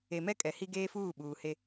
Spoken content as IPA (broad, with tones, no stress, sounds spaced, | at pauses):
e˨ m ɛ˦ kʼ ɛ˨ h i˦ ɡ eː˦ f uː˦˨ ɓ uː˨ h e˦